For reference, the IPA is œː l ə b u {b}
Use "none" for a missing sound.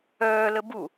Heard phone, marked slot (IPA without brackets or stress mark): none